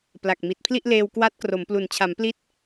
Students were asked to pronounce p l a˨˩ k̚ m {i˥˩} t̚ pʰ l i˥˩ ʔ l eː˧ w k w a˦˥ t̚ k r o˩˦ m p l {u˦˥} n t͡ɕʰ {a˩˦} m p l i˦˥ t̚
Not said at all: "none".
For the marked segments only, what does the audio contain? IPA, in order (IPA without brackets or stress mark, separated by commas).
i˨˩, u˨˩, a˩˦